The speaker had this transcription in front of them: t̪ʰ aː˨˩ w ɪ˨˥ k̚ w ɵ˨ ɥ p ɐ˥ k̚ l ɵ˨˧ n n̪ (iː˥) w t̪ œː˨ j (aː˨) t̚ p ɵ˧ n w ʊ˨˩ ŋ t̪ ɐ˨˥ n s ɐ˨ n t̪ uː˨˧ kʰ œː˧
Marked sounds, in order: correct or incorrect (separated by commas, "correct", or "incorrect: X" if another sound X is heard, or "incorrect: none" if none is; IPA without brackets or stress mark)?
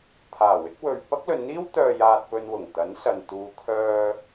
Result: correct, correct